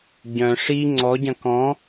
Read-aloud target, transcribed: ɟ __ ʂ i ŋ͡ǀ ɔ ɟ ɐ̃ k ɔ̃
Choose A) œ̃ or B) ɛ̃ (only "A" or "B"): A